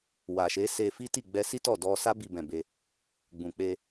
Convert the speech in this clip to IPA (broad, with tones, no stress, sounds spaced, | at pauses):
w a˨ ʃ e˨˦ s e˧ f i˦ t i˦˨ ɡ͡b ɛ˧ s i˦ t ɔ˦˨ d ɔ˧ s a˦ b i˧ b ɛ̃˨ b e˧ | ɡ͡b ũ˨ k͡p e˧